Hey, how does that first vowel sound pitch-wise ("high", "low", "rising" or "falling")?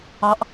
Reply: rising